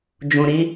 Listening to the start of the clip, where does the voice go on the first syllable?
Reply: low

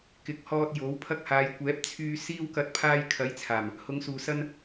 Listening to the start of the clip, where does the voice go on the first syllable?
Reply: rising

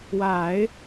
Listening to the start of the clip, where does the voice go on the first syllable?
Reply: low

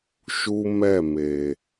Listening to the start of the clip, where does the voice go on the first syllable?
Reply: high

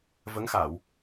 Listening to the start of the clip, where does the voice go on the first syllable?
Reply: rising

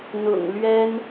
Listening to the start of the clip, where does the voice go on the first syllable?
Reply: low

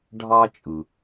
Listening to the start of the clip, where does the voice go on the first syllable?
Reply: high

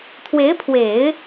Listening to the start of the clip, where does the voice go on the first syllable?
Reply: rising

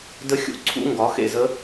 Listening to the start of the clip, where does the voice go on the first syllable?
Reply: rising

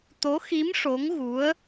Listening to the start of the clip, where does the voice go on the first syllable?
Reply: rising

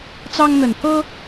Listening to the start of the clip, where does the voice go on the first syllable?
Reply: high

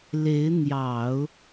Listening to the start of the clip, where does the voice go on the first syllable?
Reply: rising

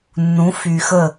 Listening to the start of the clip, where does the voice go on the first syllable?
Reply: rising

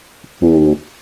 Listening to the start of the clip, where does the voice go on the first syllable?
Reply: low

